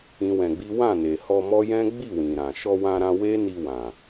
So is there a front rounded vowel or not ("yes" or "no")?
no